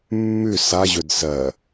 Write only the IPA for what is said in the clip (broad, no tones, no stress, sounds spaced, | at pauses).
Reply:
mː ʉ s a ʑ ɵ d s ɜ